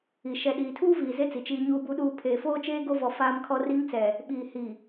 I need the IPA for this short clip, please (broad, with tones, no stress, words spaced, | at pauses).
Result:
i˨ ʃɛ˨ɗiː˨tʰuː˦viː˨ ze˦t͡si˨ t͡ʃiː˦ɲuː˦bu˦ɗuː˦ pʰeː˨foː˦t͡ʃeː˦ ɡo˦vɔ˨ faː˦mkʰɔ˦ ri˦ŋt͡sɛ˨ | ɓiː˨ hi˨